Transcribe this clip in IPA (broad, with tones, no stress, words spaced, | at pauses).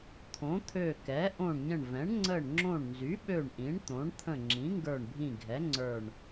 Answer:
t̪ʰõ˩˥t̪ʰø˧˩ kɛ˩˥ ʔõ˧˩ɳɲə̃˧˩ɳvɛ̃˩˥ɳ ŋ͡ǀə˧˩ɳŋ͡ǁõ˧˩ɳnzy˩˥ɓø˧˩ɳ ʔĩ˩˥ɳt̪õ˩˥ɳ t̪ʰə̃˧˩ŋ͡ǁĩ˩˥ŋɡə˞˧˩ɳbʱĩ˧˩ ɡʱɛ˩˥ŋ͡ǀə˞˧˩ɳ